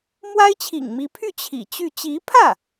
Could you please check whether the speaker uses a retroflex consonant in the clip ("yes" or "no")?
no